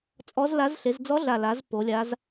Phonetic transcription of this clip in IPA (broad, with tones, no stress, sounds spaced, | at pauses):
t͡sʼ ɔ˧˥ z l a˧˥ z ɬ e˩˧ z d͡z ɔ˧˥ ɮ a˨˩ l a˩˧ z p o˩˧ lʲ a˧˥ z